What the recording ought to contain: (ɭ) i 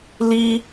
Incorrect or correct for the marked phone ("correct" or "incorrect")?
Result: incorrect